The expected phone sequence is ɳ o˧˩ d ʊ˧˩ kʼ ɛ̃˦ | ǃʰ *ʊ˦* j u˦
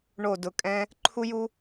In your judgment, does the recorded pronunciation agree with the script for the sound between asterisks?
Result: no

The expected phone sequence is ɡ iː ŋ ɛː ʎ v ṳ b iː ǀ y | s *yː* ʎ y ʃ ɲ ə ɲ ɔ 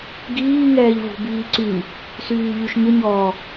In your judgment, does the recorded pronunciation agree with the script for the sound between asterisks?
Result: yes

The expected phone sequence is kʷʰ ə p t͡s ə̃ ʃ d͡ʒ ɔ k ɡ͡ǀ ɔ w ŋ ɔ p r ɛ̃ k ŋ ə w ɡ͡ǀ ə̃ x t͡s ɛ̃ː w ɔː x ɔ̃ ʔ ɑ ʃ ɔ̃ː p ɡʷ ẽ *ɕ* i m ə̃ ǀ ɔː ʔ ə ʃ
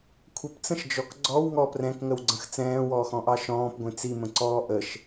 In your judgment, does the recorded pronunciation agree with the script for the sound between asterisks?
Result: no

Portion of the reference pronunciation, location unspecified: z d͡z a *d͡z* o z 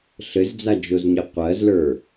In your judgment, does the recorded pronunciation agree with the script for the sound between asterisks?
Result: no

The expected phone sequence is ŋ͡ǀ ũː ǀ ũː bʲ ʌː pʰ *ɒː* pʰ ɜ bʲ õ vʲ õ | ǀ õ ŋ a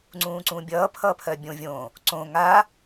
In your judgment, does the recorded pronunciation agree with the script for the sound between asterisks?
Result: no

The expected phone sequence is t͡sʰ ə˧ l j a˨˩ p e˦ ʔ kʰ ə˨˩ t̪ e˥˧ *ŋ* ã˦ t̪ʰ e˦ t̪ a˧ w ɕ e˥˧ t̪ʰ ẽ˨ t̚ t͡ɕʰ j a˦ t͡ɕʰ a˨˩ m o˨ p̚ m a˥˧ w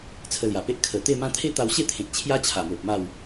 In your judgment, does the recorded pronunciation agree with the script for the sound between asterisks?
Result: no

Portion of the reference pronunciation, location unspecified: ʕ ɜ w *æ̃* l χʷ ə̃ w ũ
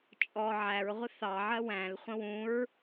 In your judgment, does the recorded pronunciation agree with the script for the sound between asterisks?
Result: yes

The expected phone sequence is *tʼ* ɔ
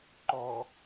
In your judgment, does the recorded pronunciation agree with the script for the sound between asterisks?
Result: no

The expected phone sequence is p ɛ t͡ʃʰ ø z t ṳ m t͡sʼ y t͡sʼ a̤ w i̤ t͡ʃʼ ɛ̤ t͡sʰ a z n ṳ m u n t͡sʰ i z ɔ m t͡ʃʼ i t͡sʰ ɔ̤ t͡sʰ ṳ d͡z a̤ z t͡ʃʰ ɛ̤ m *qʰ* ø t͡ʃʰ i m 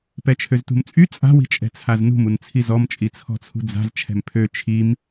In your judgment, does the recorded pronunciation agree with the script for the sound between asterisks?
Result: no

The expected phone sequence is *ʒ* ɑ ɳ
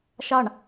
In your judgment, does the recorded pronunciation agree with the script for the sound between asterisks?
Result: no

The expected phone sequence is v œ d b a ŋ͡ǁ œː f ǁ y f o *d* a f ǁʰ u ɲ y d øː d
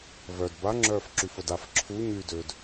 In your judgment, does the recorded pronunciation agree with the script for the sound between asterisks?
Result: yes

